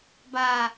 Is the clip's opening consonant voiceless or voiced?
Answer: voiced